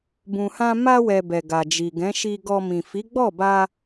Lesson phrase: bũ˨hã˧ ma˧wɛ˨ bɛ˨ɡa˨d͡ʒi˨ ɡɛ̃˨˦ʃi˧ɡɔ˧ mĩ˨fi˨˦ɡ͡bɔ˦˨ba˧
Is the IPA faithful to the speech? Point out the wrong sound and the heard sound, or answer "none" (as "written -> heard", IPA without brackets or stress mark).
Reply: none